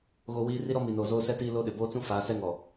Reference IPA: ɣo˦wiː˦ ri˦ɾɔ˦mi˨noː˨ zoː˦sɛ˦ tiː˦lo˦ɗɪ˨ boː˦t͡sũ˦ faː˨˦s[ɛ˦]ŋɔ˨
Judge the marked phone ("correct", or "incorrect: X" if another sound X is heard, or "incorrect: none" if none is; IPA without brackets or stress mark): correct